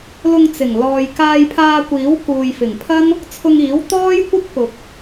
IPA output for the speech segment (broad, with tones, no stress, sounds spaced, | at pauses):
l ʊ˧ ŋ t͡s ɪ˨˩ ŋ l ɔː˨ j k aː˧ j pʰ aː˧ kʷ iː˨˥ w k uː˨ j f ɪ˨˩ ŋ pʰ ɐ˥ n | t͡sʰ ʊ˧ ŋ iː˨˥ w t̪ ɔː˥ j kʷ ɪ˥ k̚ p ʊ˨ k̚